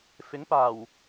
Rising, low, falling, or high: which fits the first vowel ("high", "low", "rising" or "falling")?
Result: rising